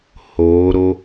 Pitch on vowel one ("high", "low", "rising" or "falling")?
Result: rising